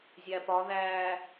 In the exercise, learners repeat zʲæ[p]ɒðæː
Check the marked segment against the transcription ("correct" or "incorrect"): correct